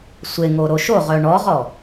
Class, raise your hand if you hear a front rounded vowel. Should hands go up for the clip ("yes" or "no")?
yes